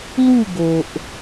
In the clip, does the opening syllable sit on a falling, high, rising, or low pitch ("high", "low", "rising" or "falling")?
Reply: falling